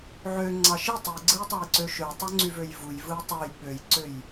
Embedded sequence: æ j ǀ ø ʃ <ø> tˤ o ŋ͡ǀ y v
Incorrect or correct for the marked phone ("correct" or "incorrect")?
correct